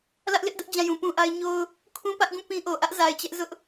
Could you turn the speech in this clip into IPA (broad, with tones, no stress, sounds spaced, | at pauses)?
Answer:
l ä˦ ʔ l ɪ˦ ʔ d ʊ˦ ʔ d͡ʑ ã˦˨ j ũ˨ p ũ˦ ʔ a˦ ɪ̯ ɲ o˦ ʊ̯ | kʰ ũ˦ p ä˦ ʔ ɡ ũ˦˨ p ĩ˦ ʔ o˨ ʔ ä˦ ʔ z a˨ ɪ̯ t͡ɕ ɛ˦ ʔ z ʊ˦ ʔ